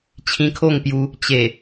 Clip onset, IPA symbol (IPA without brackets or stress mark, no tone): t͡ɕʰ